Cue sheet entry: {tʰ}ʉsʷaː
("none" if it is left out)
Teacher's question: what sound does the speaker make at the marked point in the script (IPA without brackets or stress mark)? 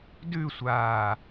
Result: d